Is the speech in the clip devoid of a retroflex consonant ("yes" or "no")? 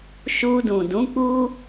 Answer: yes